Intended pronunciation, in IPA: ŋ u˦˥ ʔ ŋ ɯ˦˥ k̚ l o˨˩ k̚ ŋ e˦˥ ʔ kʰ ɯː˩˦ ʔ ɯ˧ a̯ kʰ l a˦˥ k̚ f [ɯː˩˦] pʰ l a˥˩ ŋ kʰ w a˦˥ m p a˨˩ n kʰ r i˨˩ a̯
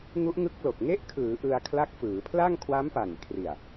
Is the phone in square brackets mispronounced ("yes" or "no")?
no